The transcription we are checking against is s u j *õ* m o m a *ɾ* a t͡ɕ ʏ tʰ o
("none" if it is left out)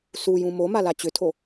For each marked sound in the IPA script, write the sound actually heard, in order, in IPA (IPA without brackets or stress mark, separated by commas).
ũ, l